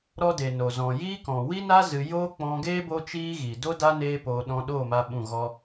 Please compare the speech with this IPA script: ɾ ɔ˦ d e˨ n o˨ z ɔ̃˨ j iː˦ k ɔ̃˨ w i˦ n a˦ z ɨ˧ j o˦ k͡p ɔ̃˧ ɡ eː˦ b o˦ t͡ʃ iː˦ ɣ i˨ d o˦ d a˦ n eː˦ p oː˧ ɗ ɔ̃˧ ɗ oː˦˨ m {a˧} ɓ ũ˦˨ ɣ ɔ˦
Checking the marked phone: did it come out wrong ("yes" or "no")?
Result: no